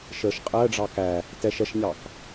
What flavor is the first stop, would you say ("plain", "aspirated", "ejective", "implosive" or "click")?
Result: ejective